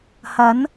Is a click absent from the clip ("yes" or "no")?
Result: yes